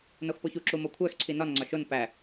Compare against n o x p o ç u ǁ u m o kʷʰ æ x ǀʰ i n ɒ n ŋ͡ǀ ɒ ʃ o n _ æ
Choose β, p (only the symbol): p